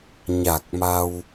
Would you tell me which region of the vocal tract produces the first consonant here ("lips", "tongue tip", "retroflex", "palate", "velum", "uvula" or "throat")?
palate